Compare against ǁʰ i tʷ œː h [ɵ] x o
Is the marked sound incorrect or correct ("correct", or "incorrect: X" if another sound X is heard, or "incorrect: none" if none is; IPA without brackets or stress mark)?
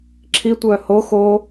incorrect: o